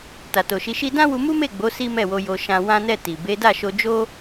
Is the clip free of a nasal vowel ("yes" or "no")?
no